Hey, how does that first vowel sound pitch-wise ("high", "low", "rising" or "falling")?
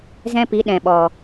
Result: high